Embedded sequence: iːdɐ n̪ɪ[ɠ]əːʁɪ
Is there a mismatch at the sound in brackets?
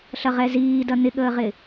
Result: no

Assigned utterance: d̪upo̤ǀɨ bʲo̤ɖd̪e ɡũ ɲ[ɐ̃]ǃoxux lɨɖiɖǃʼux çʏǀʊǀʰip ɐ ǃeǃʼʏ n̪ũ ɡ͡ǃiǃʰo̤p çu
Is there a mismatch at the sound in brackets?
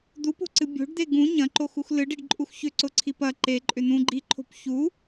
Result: no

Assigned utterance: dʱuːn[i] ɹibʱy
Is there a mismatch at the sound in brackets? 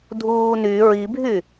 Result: yes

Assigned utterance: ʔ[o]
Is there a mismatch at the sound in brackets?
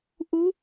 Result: yes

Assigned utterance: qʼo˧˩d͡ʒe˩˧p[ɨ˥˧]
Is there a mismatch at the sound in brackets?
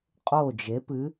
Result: yes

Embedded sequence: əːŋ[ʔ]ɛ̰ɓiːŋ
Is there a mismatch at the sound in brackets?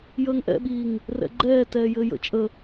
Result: no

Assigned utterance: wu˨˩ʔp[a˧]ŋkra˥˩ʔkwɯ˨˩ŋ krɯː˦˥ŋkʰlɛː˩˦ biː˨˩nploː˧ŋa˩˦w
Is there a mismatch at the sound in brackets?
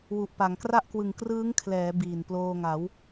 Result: yes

